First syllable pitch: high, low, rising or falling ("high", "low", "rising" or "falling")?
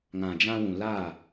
low